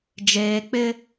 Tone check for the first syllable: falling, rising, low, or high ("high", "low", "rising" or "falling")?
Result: low